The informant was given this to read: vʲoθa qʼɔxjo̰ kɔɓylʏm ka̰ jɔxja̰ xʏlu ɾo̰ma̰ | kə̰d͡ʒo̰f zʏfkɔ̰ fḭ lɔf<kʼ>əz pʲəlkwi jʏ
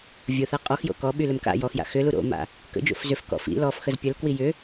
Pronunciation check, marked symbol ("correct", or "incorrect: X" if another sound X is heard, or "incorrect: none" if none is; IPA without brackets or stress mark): incorrect: x